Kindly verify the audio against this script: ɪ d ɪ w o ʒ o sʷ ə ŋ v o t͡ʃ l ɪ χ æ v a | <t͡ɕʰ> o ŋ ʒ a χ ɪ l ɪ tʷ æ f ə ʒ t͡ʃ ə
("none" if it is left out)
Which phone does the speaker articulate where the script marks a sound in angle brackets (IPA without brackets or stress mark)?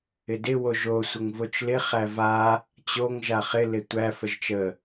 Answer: t͡ɕ